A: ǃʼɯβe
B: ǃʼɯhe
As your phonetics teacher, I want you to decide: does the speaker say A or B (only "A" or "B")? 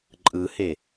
B